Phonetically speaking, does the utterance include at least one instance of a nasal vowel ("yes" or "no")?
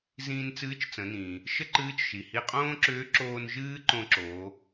yes